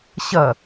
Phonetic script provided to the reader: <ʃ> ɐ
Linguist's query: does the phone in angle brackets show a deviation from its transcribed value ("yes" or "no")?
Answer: yes